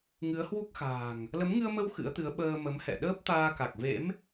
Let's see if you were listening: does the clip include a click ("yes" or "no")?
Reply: no